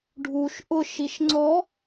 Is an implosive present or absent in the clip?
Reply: absent